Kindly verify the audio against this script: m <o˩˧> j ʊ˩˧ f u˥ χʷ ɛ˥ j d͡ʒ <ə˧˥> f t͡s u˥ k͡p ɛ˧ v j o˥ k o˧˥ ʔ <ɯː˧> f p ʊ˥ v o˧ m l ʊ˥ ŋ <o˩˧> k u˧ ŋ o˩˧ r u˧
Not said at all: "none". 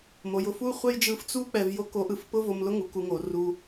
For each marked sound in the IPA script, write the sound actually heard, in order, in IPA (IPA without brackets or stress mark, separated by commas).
o˩˧, ɯ˧˥, ɯ˧, u˩˧